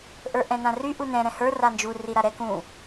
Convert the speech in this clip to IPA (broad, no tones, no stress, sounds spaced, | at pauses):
ʔ ə˞ ʔ ɛ̃ n ã r y ʔ u n ɛ̃ ɾ ɛ̃ h ə˞ r a n d͡ʒ u r i ɾ a ɾ ɛ k ũ